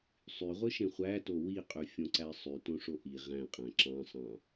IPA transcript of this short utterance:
sˤ y ʁʷ ɯ ʃ ẽ χʷ æ t o w i qʼ y fʲ õ ǀ æ sˤ y t õ ʂ o ʔ i ʁ æ̃ qʼ æ̃ ǁ ɑ̃ sˤ ɑ̃

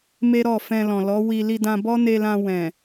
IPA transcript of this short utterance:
m e˦ ɾ ɔ˦˨ f ɛ̃˧ l ɔ̃˨ l ɔ˨˦ w i˧ l i˧ d ã˧ b ɔ˦ n e˧ l ã˧ w ɛ̃˨

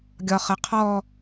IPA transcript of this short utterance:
ɡʲ ɒ χ ə qʰ ɔ

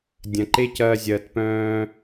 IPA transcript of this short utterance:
dʲ ɐ̃˨ ǃ e˦ c ɐː˧ zʲ ɐː˨ t p œ̃ː˧

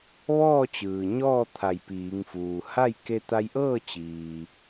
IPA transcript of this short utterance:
ʋ ɔː˥˨ t͡ɕ ɯː˩ ɲ ɔː˥˨ t̪ʰ a˧˩ j p iː˩˧ ŋ f uː˩ h a˥˨ j k e˧ t̪ a˧ j ʔ ɤː˥˨ t͡ɕ iː˩

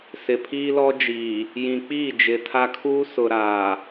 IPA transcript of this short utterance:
s ɪ˨ pʰ iː˦ l ɔ˦ d͡ʒ iː˨ | j ĩ˨ k͡p iː˦˨ d͡ʒ ɪ˨ tʰ a˦ kʰ uː˦ s ʊ˨ ɾ aː˨

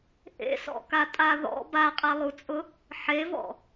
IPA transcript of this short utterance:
ʔ ḛ s ɔ̰ k a tʼ a ð ɔ̰ b a qʼ a lˠ u t͡sʼ ʊ | ħ e v ɔ̰

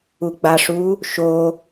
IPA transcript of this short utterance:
u ɡ͡b a ʂ u | ʃ o

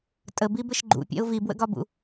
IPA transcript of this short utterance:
tʼ ə b i b ɘ ʃ ɡ͡ǃ ṵ pʲ ɛ̰ ʊ̯ v i b w ə̰ ɡ ɒ b ṵ

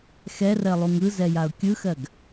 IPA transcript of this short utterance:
x ɛ r ɜ lˠ u ŋ ɯ z ɛ j a ʊ̯ kʲ ɯ x ɜ ɡ

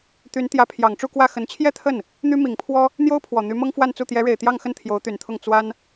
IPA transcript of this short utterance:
t̪ y˧˥ n t̪ j ä˧˥ pʰ j ɑ˨˩ ŋ ʈ͡ʂ u˥˧ k w ä˥˩ x ə˧˥ n t͡ɕʰ j ɛ˥ t̪ʰ ə˥˩ n | n̪ y˥ m i˨˩ ŋ pʰ w ɔ˥ | n̪ j o˥ ʊ̯ pʰ w ɔ˨˩ n̪ y˧˥ m ɤ˥ ŋ f w a˥˧ n t͡s u˥˩ t̪ j ɛ˧˥ ɻ e˨˩ ɪ̯ t̪ j ɑ˥˧ ŋ x ə˥˩ n t̪ʰ j o˧˥ ʊ̯ t̪ y˨˩ n t̪ʰ ʊ˥˩ ŋ t͡s w a˥ n

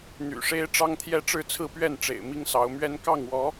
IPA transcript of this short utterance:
n̪ y̰˨˩ ʂ e˦ ɪ̯ ʈ͡ʂ ɑ˦ ŋ t̪ʰ j ɛ˦ ʈ͡ʂ ɻ̩˥˨ t͡sʰ ɹ̩˥˨ p ɥ ɛ˥˨ n ʈ͡ʂ ḛ˨˩ ɪ̯ m i˦ ŋ s ɑ˨˦ ʊ̯ m ɥ ɛ˦ n k ɑ˥˨ ŋ w ɔ˨˦

